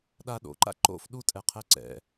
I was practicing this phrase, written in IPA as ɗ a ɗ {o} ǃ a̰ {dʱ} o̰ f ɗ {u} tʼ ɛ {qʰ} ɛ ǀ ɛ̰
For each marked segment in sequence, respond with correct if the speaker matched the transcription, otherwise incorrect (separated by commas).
incorrect, incorrect, correct, correct